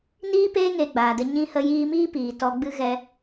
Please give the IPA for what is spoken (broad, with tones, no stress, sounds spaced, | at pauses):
n iː˦ p eː˦ ŋ eː˧ ɡ͡b aː˨ d ə˧ ɲ ĩ˧ h ə˧ j iː˧ m iː˦ p iː˨ t ɔ˨ ɡ͡b ɨ˧ ɣ ɛ˦